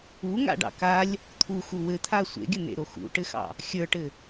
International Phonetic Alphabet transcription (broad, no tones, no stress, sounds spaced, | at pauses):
u ŋ a̰ ɖ ɑ̰ k a lʲ | t̪ʰ u x u w ɘ t̪ʰ a sʷ ḛ ɡʲ ə n̪ ḛ ɾ o x ṵ ʈ ɘ x ɑ̰ | xʲ ə˞ ʈ ɘ